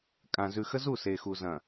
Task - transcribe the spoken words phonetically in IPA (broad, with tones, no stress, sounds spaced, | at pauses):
kʼ ã˨ z ʉ˨ x ə˦ z u˦˨ s e˨ x u˨ z ɐ̃˨